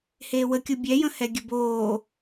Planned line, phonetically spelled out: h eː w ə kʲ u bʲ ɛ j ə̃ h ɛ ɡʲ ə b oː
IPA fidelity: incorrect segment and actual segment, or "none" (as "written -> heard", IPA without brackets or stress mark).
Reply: none